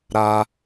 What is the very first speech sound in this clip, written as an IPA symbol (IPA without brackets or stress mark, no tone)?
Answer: ɾ